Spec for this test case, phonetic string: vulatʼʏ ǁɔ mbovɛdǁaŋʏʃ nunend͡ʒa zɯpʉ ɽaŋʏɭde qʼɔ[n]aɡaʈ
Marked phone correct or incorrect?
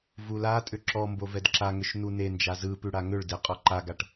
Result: incorrect